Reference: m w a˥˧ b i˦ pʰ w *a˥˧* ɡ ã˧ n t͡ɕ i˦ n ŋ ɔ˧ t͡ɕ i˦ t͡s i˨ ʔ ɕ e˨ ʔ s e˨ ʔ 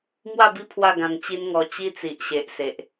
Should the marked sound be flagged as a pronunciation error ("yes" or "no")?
no